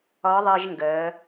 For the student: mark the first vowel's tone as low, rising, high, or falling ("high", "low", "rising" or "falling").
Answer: rising